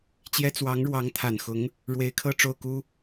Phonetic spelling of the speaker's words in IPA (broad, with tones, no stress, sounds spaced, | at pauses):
t͡ɕ j ɛ˥ t͡s w ɑ˧˥ ŋ ɻ w ɑ˧˥ ŋ t̪ʰ a˨˩ n x ʊ˧˥ ŋ | ɻ w e˧˥ ɪ̯ kʰ ɤ˥˧ ʈ͡ʂ o˥˩ ʊ̯ k u˥